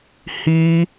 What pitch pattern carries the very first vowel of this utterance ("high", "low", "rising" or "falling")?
high